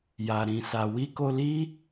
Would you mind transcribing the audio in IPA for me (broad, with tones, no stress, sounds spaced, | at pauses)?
j a˨ ɾ ĩ˨ s a˨ w i˧ k o˧ l i˦